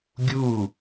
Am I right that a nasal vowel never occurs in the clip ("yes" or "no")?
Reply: yes